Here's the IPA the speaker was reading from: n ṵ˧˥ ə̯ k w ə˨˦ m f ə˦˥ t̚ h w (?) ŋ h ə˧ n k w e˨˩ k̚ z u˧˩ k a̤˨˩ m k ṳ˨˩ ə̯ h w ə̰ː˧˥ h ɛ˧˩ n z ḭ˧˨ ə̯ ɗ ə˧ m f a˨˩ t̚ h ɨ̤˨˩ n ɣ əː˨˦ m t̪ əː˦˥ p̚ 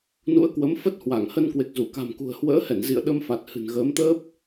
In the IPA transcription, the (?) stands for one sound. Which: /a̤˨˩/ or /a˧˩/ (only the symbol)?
a˧˩